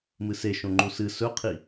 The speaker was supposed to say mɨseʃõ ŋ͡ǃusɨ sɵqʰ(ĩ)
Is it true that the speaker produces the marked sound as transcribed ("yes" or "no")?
no